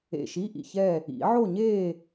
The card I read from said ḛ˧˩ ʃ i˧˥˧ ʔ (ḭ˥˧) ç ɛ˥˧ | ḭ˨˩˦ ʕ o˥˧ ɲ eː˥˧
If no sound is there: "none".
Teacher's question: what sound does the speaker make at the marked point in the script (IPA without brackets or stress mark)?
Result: ḭ˧˩